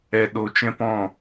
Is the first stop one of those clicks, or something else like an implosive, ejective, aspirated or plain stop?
implosive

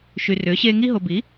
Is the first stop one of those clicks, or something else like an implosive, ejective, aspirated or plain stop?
plain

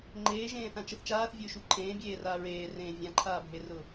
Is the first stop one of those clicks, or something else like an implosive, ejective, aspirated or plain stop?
click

